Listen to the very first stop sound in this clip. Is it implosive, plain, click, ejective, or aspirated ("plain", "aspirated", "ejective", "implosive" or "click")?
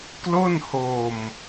plain